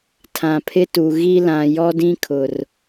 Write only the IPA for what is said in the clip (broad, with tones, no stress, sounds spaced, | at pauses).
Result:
tʰ ã˨ pʰ ɪ˦ t u˨ ɣ i˦ l ã˨ j ɔ˦ d ĩ˦ kʰ ʊ˨ r